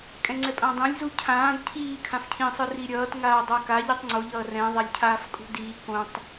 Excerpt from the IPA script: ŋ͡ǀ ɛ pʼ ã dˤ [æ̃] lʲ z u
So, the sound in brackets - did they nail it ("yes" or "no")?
no